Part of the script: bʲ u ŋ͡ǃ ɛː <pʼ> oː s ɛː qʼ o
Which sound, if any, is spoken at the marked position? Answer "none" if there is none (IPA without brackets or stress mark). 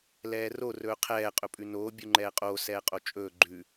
qʼ